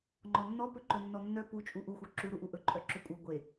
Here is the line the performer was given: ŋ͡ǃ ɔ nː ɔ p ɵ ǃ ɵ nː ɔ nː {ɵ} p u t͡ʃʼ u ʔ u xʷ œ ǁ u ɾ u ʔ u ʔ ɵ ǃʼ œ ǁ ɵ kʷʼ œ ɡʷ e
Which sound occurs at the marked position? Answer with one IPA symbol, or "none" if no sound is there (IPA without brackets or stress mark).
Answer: œ